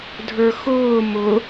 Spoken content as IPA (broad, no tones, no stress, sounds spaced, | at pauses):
dʱ ə˞ x ʊː m ʊ